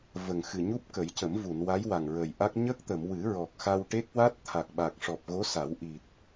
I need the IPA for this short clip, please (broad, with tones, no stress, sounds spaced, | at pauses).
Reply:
v ə˨˩ ŋ x ɨ˨˩ ɲ u˦˥ p̚ k ə˨˩˦ j c ə˨˩˦ m v u˨˩˨ n w a˧˥ j w a˨˩ ŋ ɹ ə˨˩ j ʔ a˦˥ k̚ ɲ ə˦˥ k̚ t̪ ə˨˩˨ m w ɨ˨˩˦ ɹ ɔ˨˩ k̚ x a˧ w ʈ e˦˥ k̚ w a˦˥ t̚ t̪ʰ a˨˩ k̚ ɓ a˨˩ k̚ ʂ ɔ˨˩ p̚ ɣ o˧˥ s a˨˩˦ w ʔ i˨˩ t̚